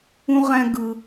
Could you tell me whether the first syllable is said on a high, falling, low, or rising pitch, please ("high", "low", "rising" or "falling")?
high